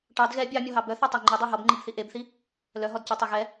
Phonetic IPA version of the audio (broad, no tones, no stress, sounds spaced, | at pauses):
ʈ ɑ d ɣ ɛ bʲ ɑ mʲ ɔ ɦ ɑ b œ θ e tˤ æ ŋ͡ǃ i dˤ ɑ ɦ ɔ b ŋ͡ǃ i b θ i ʔ e b θ i | l œ ɦ ɔ d c œ tˤ e ɣ ɛ